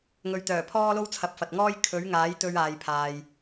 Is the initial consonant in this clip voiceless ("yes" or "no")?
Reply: no